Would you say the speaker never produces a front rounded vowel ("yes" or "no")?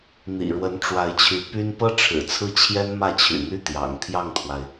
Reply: no